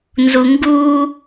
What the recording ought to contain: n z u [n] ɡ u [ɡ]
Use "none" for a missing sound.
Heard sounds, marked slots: ŋ, none

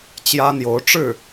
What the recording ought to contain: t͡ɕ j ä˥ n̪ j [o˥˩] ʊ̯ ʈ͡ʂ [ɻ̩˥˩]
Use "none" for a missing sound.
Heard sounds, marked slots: o˧˥, ɻ̩˥˩

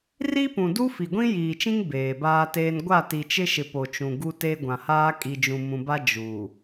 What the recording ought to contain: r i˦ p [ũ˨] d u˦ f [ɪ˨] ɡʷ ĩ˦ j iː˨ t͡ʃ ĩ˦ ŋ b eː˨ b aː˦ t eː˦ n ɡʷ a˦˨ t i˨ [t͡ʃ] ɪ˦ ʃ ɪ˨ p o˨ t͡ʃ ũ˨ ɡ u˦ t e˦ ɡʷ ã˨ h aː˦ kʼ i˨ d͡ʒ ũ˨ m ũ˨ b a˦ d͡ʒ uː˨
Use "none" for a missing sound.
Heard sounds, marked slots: ũ˨, i˨, t͡ʃ

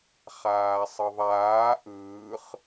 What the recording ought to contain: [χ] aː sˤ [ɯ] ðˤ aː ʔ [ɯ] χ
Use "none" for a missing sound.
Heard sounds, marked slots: χ, ɯ, ɯː

